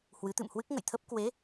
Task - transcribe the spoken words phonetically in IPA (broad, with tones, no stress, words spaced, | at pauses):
hwɨ˨˦t̪ɨ̰˧˨mhwɨ˦˥k̚ ŋə̰˧˨jt̪ʰə˦˥p̚ kwe˨˦